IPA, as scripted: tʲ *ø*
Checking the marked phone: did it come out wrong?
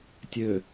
no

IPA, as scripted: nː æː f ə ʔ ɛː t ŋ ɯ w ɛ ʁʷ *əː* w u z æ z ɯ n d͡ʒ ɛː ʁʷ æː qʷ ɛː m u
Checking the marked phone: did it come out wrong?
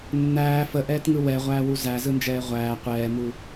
yes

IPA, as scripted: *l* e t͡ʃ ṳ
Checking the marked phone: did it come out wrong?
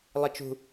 yes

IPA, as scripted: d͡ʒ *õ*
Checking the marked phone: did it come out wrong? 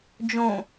no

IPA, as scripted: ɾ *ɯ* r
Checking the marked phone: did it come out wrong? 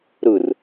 no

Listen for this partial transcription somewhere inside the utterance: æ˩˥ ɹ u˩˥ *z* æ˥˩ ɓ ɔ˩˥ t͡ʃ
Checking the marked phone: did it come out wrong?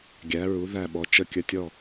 yes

